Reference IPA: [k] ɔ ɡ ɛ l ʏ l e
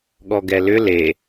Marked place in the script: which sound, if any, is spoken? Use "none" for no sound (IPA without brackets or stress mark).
ɠ